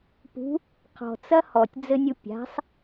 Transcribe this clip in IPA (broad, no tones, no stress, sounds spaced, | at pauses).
p ṳ | qʰ ɔ̤ t͡s ɐ h ɔ tʲ d͡z ɘ nʲ u pʲ a̤ sˤ